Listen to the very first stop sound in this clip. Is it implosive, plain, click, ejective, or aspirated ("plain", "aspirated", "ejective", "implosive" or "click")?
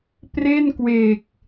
plain